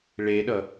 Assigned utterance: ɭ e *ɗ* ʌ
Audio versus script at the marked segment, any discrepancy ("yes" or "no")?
no